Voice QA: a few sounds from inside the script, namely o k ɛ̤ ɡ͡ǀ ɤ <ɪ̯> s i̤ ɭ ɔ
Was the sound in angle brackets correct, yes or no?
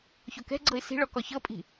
yes